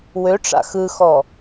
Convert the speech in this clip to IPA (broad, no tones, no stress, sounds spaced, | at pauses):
w ø ʈ͡ʂ a̰ x ɯ x ɔ